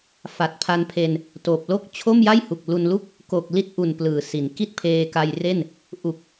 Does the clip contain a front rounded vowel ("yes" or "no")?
no